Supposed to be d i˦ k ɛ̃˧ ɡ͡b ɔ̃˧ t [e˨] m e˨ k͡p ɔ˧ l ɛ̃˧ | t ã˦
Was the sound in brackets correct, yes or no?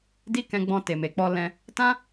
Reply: yes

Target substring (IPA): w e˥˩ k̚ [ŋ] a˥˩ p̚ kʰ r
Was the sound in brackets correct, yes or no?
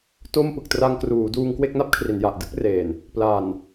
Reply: no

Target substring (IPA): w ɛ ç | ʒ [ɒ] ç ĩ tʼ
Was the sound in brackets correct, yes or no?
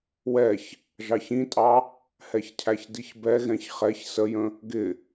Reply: no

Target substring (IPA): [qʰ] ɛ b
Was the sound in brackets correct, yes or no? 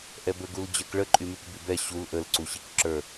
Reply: no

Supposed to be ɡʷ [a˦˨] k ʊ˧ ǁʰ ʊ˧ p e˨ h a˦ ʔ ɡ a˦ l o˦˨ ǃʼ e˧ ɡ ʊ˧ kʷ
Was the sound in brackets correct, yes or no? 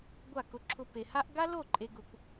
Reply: yes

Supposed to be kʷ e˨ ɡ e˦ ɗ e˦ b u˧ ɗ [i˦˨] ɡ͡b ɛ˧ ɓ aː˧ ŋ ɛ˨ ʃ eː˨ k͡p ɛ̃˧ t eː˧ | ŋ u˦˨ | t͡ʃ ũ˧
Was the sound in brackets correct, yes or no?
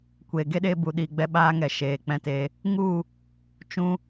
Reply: no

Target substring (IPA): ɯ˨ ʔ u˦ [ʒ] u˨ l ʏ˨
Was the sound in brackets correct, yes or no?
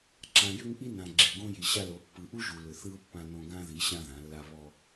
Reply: yes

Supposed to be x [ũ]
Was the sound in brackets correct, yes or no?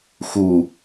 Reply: no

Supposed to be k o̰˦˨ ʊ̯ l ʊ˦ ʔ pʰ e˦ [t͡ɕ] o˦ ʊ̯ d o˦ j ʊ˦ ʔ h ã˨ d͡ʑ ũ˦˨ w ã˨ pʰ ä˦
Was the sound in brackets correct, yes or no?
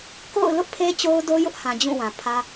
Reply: yes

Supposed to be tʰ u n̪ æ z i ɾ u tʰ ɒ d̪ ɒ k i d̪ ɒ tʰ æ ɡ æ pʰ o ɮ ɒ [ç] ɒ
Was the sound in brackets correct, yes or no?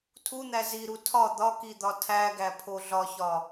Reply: yes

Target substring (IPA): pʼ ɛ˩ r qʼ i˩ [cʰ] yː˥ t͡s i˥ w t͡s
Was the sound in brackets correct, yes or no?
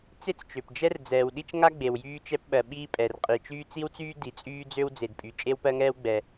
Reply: no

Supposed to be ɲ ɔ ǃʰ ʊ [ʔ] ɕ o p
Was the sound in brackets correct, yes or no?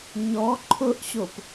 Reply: yes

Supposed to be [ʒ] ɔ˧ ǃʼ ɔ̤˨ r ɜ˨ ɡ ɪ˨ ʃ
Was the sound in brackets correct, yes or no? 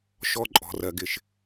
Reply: no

